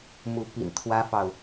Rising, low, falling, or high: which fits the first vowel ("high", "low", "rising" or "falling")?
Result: rising